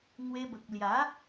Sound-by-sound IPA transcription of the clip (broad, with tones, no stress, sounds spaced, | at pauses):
ŋ w e˧ b ə˨ k̚ l j a˨˦